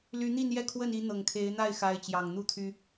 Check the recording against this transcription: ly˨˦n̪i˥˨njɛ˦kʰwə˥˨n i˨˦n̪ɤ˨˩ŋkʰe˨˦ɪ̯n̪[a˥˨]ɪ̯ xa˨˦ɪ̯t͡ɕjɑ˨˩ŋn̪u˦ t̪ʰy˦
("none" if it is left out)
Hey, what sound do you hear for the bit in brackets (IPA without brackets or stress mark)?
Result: a˥˨